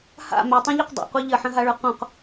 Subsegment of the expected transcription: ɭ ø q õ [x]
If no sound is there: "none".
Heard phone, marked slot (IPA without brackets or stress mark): q